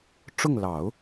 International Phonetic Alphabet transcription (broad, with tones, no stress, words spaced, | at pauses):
ʈ͡ʂʊ˥˩ŋ lɑ˨˩˦ʊ̯